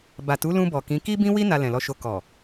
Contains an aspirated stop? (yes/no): no